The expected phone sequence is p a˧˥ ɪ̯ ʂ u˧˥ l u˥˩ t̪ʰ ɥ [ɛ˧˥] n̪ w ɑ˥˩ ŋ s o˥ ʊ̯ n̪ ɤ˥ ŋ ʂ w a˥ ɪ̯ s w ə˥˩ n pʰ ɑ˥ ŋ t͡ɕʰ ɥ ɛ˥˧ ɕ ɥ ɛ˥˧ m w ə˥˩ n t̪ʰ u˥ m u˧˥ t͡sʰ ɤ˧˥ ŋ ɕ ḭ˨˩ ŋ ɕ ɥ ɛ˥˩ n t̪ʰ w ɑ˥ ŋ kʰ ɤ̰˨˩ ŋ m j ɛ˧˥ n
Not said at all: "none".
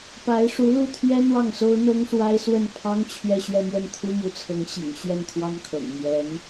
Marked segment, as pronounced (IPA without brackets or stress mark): ɛ˥